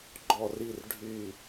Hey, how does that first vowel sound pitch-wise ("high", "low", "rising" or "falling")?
falling